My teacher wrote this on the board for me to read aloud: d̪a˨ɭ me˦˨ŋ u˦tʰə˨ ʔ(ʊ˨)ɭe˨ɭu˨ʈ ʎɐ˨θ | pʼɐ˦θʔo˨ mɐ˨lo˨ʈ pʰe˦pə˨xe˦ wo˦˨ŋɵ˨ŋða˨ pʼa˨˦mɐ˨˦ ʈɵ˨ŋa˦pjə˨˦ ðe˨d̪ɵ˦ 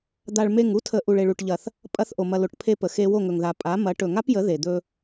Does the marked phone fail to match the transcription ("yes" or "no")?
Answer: yes